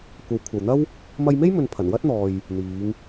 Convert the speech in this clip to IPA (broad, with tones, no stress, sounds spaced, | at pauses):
kʷ ɐ˨˧ w kʷʰ ɐ˨ w n̪ ɐ˥ w | m ɐ˧ j m e˥ j m ɵ˨ n pʰ ɐ˨˩ n w ɐ˥ t̚ n̪ ɔː˨ j | n̪ iː˨˧ ŋ